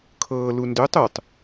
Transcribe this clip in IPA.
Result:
kʰ ɤː l u n d ø tˤ ø tˤ

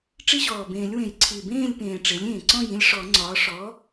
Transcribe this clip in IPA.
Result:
ʈ͡ʂ i˦ ʑ ɔː˨˩ b ẽː˨˩˦ lʲ w ẽ˨˩˦ j ǀʰ i˨˩ b ẽː˥˨ lʲ p ẽː˨˩ ʈ͡ʂ e˩˥ lʲ ẽː˨˩ ǀ ɔ̃˥˨ j ĩ˦ lʲ ʂ ɔ˨˩˦ ŋ͡ǀ ɒː˩˥ ʂ ɔ˩˥

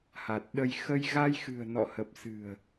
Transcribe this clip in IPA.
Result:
h a˨˩ t̚ ɗ ə˧ j x ə˧ j ɣ a˧ j x ɨ̤˨˩ ə̯ n ɔ̰˧˨ h ə˨˩ p̚ s ɨ̤˨˩ ə̯

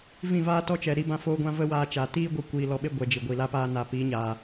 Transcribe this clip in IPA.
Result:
v ĩ˦˨ v aː˦ t ɔ˦ t͡ʃ ɛ˨ ɾ i˦ b ã˦ f oː˦ ɡʷ ã˦ v ə˦ w aː˧ t͡ʃ aː˨ t iː˦ ɡʷ ɨ˧ kʷ iː˧ l ɔ˧ ɓ e˦ ɡʷ ɛ˨ d͡ʒ i˨ ɡʷ i˨ l a˦ p aː˦ n a˧ p iː˨˦ ɲ aː˨

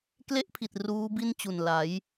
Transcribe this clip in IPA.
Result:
k l e˥˩ ʔ pʰ i˨˩ t̚ r uː˦˥ b i˥˩ n t͡ɕ u˨˩ n l a˩˦ j

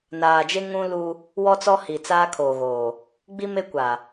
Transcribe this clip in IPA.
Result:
n aː˨ d͡ʒ e˦ ŋ ũ˦ l u˦ | w ɔ˦ t͡s ɔ˦ h i˨ t͡s aː˦ kʰ oː˨ ɣ oː˨ | ɡ͡b i˦ m e˦ kʷ a˨

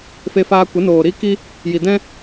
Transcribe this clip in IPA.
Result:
f e˧ f aː˧ kʷ ə˨˦ n oː˨ ɾ i˦ k i˦ | j i˨ d ɛ̃˦

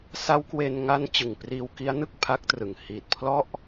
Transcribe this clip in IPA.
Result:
s a˦˥ w k w e˧ n ŋ a˦˥ n t͡ɕ ɯ˨˩ ŋ p r iː˧ w k i˦˥ a̯ n ɯ˥˩ k̚ pʰ a˦˥ k̚ t r ɯ˨˩ ŋ h iː˨˩ t̚ pʰ l ɔ˥˩ ʔ

